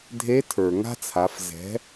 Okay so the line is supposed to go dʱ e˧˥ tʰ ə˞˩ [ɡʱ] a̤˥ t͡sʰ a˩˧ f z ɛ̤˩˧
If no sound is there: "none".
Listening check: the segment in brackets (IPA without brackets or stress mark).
ŋ